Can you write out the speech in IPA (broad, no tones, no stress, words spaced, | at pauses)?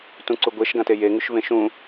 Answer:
tũǀuɡʷeʃ ɡãteje ŋʉʃvẽʃũ